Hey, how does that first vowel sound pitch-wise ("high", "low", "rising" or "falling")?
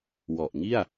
low